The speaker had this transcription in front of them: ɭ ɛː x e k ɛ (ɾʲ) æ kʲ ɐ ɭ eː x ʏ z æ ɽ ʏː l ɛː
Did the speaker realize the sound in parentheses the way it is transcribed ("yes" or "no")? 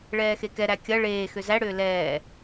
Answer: no